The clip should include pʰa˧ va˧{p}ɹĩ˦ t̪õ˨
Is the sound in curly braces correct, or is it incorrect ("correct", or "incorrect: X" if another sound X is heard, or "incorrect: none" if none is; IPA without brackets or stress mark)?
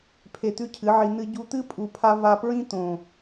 correct